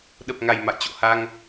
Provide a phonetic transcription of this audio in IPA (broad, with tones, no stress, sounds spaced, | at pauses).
ɗ ə˨˩ p̚ ŋ a˨˩ j m a̰˧˨ j t͡ɕ o̰˧˨ h a˧ ŋ